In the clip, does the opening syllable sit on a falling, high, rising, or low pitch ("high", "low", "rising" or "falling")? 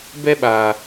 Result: high